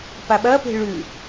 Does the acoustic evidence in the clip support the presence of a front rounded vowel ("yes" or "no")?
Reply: no